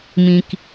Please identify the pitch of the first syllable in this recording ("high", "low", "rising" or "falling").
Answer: low